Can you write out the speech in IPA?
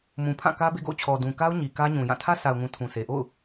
mũ˨pʰã˦˨kä˦ bḛ˦˨ɡo̰˦˨ʊ̯t͡ɕʰɔ˨ dũ˨ka˦ʊ̯ ɲi˨kä˦ɲũ˨ jã˦˨ tʰä˦sa˨ʊ̯ŋũ˨ tʰũ˨sʰe˨ʔo̰˦˨ʊ̯

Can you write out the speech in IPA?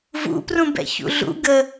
vṵprũ bɛ̰çṵɮṵ ɡə

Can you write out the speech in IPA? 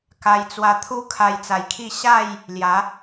ka˧jt͡swa˧ t̪ʰu˦ kʰa˧jt͡sa˨˩jkʰi˥˧ ɕa˥˧j | lja˨˦

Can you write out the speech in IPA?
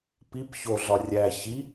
pip çoɮɒ rʲæ çi

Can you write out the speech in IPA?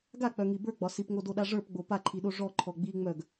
ɡak͡pœŋi bə˞ɡ͡bɒ sipŋodoɗa ʐə˞pɡ͡bo paǃʰiɗo ʐɔǃʰɔ ɡ͡biŋ͡mœɡ

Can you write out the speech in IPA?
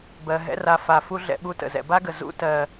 bɜ˨ɦɛ̰˦ ra˨fa˩ fu˦ɮɛ̰˨ɓu˦ tə̰˩ zɛ̰˨ba˥ɡə˩ zṵ˥tɜ˨

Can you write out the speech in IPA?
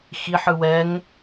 xiħ ɯwɛŋ

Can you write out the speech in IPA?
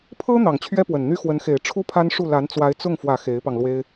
pʰɤ˥ n̪ɑ˨˩ŋt͡ɕʰɥɛ˥pwə˨˩nn̪y˥ xwə˧˥nxe˨˩ɪ̯ ʈ͡ʂʰu˥pʰa˥nʂu˥˩la˧˥n t͡swa˧˥ɪ̯t͡sʊ˥˩ŋfwä˨˩ xe˧˥ɪ̯pɑ˧ŋlwe˥ɪ̯

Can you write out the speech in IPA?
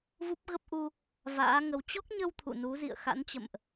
vu˦˥p̚ɣə˦˥p̚ʔu˧ | va̰ː˧˥ŋə˧w t͡ɕɔ˦˥k̚ɲə˧w t̪ʰṵ˧˨nu˨˦ zḭ˧˨ə̯xa̰˧˥nt͡ɕə̰˧˨mʔ

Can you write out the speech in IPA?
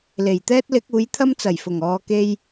le˨˩jt̪ɛː˥t̚lɪ˨˥k̚ uː˨˥jt̪ʰɐ˥mt͡sɐ˨˩j fʊ˨˩ŋɔː˨ke˧j

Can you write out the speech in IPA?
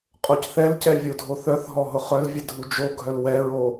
qʼocθɛlcɛ vʲodʱoθœθɦɔ ɦʊχœlvʲɛ dʱud͡ʒoɡʱœl wɛɹo

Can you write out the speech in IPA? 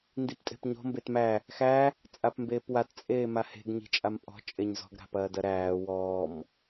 ndiptʼe̤pɲɔ̤ mbetmæ | xæ | t͡sʼapmbeːpwat t͡sʼeːmahe̤ɡ ɲi̤t͡ʃʼampʼɔ̤ t͡ʃʼeɲzɔ̤ɡ ɾa̤pɐːdɐɾæː wɔːm

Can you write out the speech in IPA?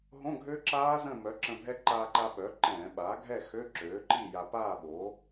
ɦõ˧˥˧ɡʱø˦˥ǁaː˦˥ zə̃˥˨ mœ˩˥ǁə̃˧bʱɛ˦˥ ǃaː˧ǃa˧ ɓœ˩˥ǃɛ̃ː˧˩˧ɓaː˩˥ ɡʱɛ˥˨xø˧˥˧ ǁøː˩˥ǃi˥˨ja˧ paː˥˨ɓo˩˥

